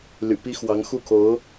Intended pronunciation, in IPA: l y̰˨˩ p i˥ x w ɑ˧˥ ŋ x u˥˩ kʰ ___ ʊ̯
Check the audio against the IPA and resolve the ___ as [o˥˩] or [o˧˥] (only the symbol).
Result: o˧˥